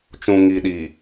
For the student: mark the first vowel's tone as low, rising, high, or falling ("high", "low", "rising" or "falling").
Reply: low